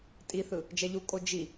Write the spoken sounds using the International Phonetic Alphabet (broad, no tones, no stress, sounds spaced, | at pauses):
tʼ i θ ɯ | d͡ʒ ɛ ʎ u kʼ o d͡ʒ i